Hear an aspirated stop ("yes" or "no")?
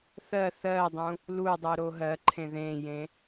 yes